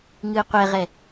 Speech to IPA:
ŋ ɨː qʷ ɛ ʁ ɛ

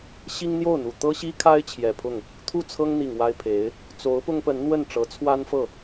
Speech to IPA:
ɕ i˥ ŋ n̪ j o˥˩ ʊ̯ n̪ u˨˩ t̪ ɤ˥ ɕ i˥ kʰ a˥ ɪ̯ t͡ɕʰ j ɛ˨˩ pʰ ʊ˥˩ ŋ | t̪ʰ u˥˩ t͡sʰ ɤ˥ ŋ n̪ i˨˩ ŋ w a˥ ɪ̯ pʰ e˧˥ ɪ̯ | t͡s o˧˥ ʊ̯ p ʊ˥ ŋ p ə˧˥ n n̪ w ə˥˩ n ʈ͡ʂ ɤ˧˥ t͡sʰ w a˥ n f ɤ˥˩

